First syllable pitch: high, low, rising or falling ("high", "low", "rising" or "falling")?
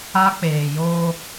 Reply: high